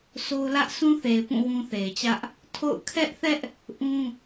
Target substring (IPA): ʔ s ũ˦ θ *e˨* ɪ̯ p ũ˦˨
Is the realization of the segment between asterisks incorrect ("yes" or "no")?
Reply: no